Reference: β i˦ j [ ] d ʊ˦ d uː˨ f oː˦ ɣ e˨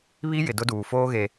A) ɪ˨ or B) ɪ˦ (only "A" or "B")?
A